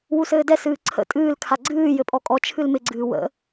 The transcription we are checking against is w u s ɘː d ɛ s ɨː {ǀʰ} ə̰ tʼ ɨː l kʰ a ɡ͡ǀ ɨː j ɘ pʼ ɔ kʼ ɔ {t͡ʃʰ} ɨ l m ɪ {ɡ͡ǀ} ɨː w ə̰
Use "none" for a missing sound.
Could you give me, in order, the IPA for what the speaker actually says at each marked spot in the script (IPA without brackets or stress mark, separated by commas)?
ǀʰ, t͡ʃʰ, ɡ͡ǀ